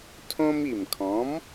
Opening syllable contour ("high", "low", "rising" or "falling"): high